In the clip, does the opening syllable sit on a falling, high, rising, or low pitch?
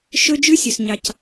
high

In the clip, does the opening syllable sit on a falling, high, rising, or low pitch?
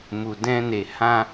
low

